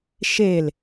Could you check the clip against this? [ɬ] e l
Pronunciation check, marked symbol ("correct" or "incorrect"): incorrect